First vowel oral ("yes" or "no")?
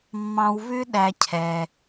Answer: no